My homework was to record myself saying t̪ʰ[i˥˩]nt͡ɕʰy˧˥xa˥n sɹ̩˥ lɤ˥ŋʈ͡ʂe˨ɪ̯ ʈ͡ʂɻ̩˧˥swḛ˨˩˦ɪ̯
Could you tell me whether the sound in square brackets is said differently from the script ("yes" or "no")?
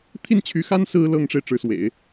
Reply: no